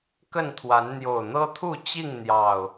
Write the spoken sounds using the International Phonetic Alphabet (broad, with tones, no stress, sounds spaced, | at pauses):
k ə˥˨ n t̪ʰ w a˨˦ n n̪ j o˨˩ ʊ̯ n̪ ɤ˦ t̪ʰ u˥˨ t͡ɕ i˥˨ ŋ n̪ j ɑ˨˩ ʊ̯